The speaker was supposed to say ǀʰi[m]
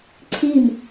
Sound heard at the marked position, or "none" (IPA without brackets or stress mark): m